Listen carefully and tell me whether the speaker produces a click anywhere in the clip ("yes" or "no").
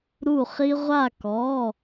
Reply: no